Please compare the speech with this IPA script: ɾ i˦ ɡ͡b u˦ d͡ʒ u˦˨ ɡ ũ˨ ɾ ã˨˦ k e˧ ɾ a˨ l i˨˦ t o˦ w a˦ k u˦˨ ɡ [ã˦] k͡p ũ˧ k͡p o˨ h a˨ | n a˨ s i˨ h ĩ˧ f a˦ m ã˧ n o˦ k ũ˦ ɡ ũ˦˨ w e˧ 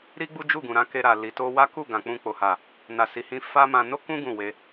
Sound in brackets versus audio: incorrect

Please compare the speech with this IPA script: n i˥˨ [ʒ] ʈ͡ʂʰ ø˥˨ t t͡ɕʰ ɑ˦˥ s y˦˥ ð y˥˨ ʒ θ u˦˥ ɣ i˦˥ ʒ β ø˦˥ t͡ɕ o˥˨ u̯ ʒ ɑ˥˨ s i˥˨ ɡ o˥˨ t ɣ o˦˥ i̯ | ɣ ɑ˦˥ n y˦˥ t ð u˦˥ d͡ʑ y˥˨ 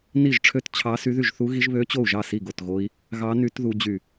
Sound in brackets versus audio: correct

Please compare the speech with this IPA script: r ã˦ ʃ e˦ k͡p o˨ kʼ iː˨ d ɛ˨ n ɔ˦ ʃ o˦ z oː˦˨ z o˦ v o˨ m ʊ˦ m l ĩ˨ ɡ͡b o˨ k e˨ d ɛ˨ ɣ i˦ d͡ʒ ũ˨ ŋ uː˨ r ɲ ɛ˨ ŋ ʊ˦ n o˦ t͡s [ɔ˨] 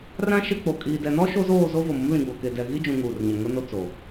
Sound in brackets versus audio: incorrect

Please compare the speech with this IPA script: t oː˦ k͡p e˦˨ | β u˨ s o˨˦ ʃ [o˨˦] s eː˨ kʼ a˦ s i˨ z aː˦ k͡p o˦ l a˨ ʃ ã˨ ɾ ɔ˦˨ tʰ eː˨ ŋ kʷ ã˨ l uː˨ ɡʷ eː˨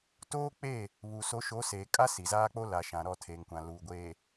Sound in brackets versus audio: correct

